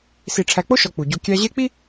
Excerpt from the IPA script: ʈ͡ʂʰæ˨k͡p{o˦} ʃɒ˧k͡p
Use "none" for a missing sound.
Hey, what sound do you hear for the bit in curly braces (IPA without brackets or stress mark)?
o˦